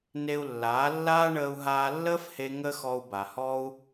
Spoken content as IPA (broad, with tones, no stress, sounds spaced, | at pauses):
n e˧ u̯ lː aː˨˦ lː aː˦ ɳ əː˧ u̯ ɦ aː˧ lː əː˦ f h e˧ ŋ ə˦ x ɔ˧ u̯ b a˨ h ɔ˦ u̯